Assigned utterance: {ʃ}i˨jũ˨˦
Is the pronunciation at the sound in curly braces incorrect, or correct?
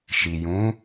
correct